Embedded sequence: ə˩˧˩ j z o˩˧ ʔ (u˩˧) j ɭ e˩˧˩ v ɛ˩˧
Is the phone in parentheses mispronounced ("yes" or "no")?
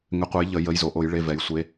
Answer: yes